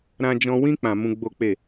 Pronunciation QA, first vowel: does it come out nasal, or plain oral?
nasal